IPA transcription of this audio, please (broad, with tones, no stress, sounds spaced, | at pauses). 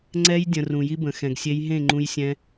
ŋ͡ǀ ɛ˦ j dʲ ə̃˨ r ũ˨ j i˧ b ə̃˨ x ɛ̃˨ ɡ sʲ e˧ j ɦ ẽ˦˨ ŋ͡ǃ ũ˧ j sʲ ɛ̃˧